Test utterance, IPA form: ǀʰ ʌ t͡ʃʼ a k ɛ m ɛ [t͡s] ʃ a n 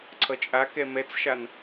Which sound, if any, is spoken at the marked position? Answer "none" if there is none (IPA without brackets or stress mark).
t͡s